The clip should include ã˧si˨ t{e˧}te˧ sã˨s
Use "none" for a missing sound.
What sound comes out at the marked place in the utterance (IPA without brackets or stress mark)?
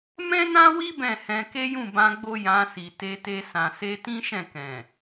e˧